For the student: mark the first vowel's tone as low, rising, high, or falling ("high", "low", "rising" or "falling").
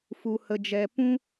low